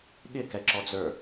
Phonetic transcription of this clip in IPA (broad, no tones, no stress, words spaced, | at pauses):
ɠɪkɛǁɔd͡zə˞